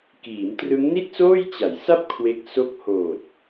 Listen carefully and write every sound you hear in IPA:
k iː˩˦ m t r ɯ˦˥ ŋ n i˥˩ t̚ s oː˥˩ j t͡ɕ a˩˦ j s a˥˩ p̚ kʰ w e˦˥ k̚ s o˦˥ k̚ h oː˨˩ t̚

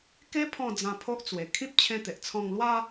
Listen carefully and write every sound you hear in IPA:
k e˦ pʰ ɔ̃˥˧ d͡z ã˧ pʰ o˦ ʔ t͡s w e˨˩ kʰ ĩ˦ p̚ t͡ɕʰ ẽ˧ t̪ e˨ ʔ t͡sʰ ɔ̃˧ ŋ l w a˦

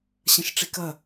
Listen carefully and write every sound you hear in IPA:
ɕ ɐ̃ ʃ ʈ͡ʂ i k ɐ

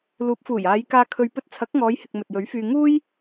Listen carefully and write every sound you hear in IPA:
l uː˨˥ p̚ f uː˨˩ j aː˨˧ j k aː˧ kʰ ɵ˧ ɥ p ɵ˧ t̚ t͡sʰ ɐ˨˥ k̚ ŋ ɔː˨˧ j h ɪ˨ k̚ m ɵ˨ t̚ j ɵ˨˥ ɥ f yː˧ ŋ uː˥ j

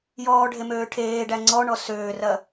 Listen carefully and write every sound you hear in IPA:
j ɔː ɖʱ e m øː ʈʰ eː ɖ æ ŋ͡ǀ ɔ ɳ ɔ s øː r ɐ

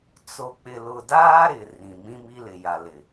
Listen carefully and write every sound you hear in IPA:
t͡s o˨ k͡p ɪ˨ l ʊ˨ d aː˦ ɾ ɪ˨ r ĩ˨ m ĩ˦ m i˦ l ɪ˨ j a˨ l ɪ˨

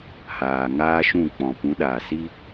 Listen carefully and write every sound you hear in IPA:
h aː˨ ŋ aː˦ ʃ ũ˦˨ k͡p ɔ̃˨ p ũ˨˦ ɗ aː˨ s i˦

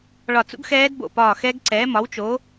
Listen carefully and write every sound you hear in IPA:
ɭ ɒ˧˩ t͡s ṵ˦˥ ɡ x ɛː˦˥ d b o̰˧˩ p ɒː˧˩ x ɛ˦˥ ɡ ǀ ɛː˨˥ m ɒ˨˥ w t͡ʃ o˨˥

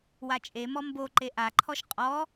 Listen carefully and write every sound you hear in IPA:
w a t͡ʃʼ e m ɔ m b o ǃ e ʔ a ǃʰ ɔ ʃ qʼ ɔ

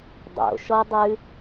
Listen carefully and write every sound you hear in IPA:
dˤ o̰ ʃ ɔ dˤ ʉ

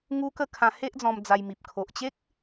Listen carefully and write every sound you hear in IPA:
ŋ u˦ k ə˥˧ kʰ ã˧ h e˦ ʔ d͡z ɔ̃˧ m d͡z a˧ j m i˨ p̚ kʰ o˨ ʔ t͡ɕ e˦ k̚

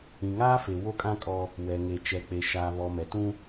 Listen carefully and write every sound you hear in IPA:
ĩ˨ ŋ aː˦ f e˨ w o˦ kʼ ã˦ kʼ ɔ˦ | w ɛ˨ ŋ e˨ t͡ʃ ɛ˨ k͡p e˨ ʃ a˨ β ɔ˨ m ɛ˨ t ũ˦

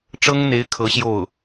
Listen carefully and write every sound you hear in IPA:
ʈ͡ʂ ɤ˥ ŋ n̪ e˧˥ ɪ̯ kʰ ɤ˧˥ ɕ j o˥˩ ʊ̯

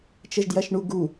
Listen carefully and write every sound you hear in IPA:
t͡ʃ ə ʒ d j ɐ ʃ ɳ u ɡ u

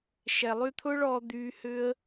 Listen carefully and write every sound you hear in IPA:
ʃ ɛ˨ lˠ y˧ t̪ʰ ʊː˦ ɭ ɔː˧ d̪ yː˧ h ʏ˦ ə̯

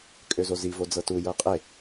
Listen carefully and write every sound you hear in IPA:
kʼ ø z o z i v o d͡z ɤ t u j ɤ qʼ e

